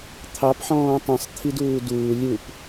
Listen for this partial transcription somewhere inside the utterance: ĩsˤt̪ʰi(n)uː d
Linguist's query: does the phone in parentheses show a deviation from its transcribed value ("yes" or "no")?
yes